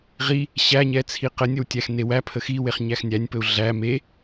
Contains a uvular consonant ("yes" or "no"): yes